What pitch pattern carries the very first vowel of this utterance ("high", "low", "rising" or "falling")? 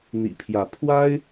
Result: low